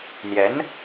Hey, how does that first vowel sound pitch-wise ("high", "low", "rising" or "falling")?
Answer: rising